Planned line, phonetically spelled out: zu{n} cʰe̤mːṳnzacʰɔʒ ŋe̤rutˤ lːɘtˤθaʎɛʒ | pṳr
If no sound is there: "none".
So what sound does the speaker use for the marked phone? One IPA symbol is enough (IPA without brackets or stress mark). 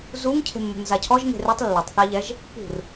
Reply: ŋ